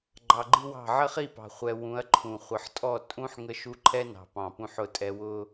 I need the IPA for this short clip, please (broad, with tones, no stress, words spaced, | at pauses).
ɡ͡ǃɑ˨ɡ͡ǃi˦wɑ̤˦˨ ʕə˦χi˦˨pɑ̤˨ χʷɛ˨ wũ˨˦ɐ̯ǃʰũ˨ χʷə˨ħtʼɔ˦˨ tʼũ˦ħ ŋə˦ʃu˦ ǃʰɛ˦nɑ̤˨pɑ̃˨ pũ˦ħʊ˦˨tʼɛ˦ wʊ˦